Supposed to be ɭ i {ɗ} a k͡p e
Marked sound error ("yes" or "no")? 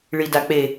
yes